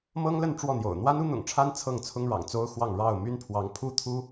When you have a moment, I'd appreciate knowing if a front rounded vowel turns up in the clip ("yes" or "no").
yes